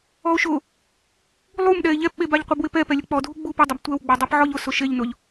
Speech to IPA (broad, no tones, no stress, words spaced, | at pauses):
ɔo̯ʃʊ | lˠumɗɛe̯ ʎɛpɓe baʎqʷɛbwɪpɛ pɛlʲʊk͡pɔdʱu ɡ͡bup ɪdˤɪb tʷɛwɡ͡ba dˤepʕɔʎʊsʊ ʃeʎnʊʎ